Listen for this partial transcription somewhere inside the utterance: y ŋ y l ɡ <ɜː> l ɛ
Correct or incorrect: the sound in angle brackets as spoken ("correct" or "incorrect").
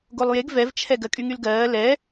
correct